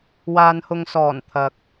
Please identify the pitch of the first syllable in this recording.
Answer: low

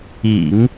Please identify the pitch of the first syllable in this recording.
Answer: low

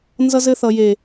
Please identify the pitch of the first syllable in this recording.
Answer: high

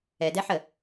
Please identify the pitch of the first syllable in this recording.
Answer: low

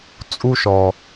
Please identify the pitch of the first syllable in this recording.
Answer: high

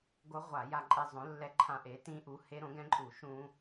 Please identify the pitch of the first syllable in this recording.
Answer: rising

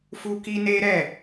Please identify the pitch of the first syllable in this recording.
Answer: high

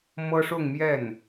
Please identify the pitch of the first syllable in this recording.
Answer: high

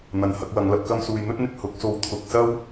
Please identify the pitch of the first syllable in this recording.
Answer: low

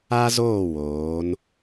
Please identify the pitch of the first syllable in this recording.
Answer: high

